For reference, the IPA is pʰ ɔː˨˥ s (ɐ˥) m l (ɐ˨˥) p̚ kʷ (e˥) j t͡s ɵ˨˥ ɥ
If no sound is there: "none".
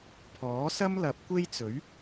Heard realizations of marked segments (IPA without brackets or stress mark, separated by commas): ɐ˥, ɐ˨˥, e˥